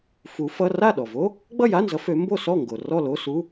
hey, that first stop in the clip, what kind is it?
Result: implosive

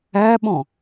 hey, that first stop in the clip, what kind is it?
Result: implosive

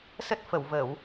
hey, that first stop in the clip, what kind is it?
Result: plain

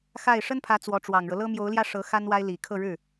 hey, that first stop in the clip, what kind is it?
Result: aspirated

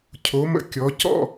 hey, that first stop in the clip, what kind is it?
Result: aspirated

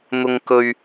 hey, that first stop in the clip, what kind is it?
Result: plain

